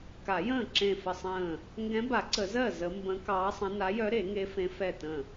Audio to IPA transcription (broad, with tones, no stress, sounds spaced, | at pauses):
k a˨˩˦ j ə̃ː˥˩ ǁ ẽ˥˩ f ə˥˩ sˤ ə̃ː˥˩ | ŋ ɡ ɛ̃˧˥ b a˨˩˦ ǀ ə˨˩˦ z ɜ˥˩ z ə˧˥ m b ə̃˧˥ k ɑː˧˥ sˤ ə̃˧˥ n a˧˥ j œ˧˥ ɾ e˨˩˦ ŋ e˧˥ f ẽ˧˥ f ɛ˥˩ t ə̃˥˩